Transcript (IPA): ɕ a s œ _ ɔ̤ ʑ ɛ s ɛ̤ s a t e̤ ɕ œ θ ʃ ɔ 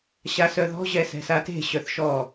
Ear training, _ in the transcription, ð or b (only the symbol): ð